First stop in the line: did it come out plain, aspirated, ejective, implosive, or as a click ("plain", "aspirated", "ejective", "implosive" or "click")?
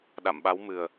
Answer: implosive